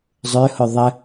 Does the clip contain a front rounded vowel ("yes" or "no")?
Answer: yes